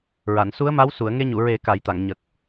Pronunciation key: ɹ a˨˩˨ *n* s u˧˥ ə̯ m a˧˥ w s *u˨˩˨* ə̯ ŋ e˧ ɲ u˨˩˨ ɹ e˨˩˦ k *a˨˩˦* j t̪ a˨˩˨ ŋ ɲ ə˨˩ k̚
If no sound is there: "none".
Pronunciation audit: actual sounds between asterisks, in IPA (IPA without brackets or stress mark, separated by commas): n, u˨˩˨, a˨˩˦